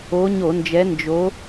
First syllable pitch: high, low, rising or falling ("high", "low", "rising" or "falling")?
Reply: rising